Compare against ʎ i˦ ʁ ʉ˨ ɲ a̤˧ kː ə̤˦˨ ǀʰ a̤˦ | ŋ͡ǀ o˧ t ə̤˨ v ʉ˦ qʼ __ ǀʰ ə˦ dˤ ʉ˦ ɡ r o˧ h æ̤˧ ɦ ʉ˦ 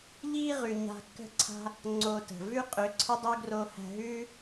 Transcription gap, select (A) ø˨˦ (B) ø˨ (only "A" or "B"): A